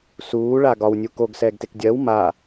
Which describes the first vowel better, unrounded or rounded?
rounded